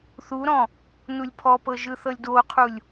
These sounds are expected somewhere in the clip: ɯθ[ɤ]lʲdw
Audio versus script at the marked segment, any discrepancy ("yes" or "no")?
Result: no